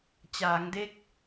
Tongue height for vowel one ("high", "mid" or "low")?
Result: low